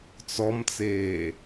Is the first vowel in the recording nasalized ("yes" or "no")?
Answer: no